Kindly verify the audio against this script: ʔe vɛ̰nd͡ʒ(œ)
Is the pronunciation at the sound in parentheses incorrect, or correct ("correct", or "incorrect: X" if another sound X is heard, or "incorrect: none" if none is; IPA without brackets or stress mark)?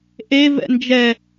incorrect: ɛ